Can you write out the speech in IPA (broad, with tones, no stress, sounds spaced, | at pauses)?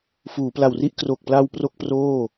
f uː˩˦ p l a˨˩ w r i˥˩ ʔ k r o˨˩ k̚ p l a˧ w p r o˥˩ k̚ p r oː˥˩